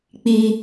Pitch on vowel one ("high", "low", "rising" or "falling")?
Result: high